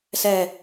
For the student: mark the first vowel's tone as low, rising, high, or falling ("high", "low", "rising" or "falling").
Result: low